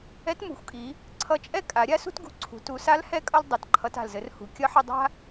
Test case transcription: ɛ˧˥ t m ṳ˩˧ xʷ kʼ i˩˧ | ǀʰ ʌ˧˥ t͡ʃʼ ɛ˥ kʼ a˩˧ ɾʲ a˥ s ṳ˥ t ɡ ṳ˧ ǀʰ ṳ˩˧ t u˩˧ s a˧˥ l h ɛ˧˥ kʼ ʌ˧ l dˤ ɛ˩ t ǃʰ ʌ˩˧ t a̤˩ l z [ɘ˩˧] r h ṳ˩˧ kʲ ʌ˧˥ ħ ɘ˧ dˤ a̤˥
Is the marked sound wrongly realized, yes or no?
no